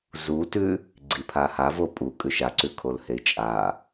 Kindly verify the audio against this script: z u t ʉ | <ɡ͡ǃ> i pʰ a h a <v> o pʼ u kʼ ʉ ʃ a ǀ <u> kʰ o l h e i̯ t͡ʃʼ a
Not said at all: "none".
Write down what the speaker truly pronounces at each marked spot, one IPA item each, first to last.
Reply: ɡ͡ǀ, v, ʉ

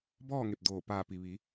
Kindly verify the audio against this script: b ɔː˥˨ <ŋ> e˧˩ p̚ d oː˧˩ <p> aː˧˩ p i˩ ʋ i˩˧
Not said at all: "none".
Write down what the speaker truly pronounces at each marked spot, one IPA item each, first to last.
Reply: ŋ, p

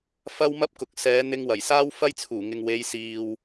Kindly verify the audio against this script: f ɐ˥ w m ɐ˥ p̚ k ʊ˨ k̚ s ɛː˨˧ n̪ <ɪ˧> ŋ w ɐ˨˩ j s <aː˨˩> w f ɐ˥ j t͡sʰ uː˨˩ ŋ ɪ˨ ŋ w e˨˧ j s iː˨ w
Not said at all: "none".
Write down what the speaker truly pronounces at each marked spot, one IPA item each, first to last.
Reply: ɪ˧, aː˥

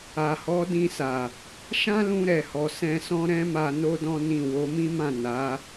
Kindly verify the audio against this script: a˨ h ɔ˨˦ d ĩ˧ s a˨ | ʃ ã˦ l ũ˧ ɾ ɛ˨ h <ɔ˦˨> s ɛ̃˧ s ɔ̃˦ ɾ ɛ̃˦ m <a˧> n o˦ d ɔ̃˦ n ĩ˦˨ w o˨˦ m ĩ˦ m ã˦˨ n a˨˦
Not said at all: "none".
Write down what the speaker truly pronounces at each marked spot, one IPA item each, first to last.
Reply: ɔ˨, a˧

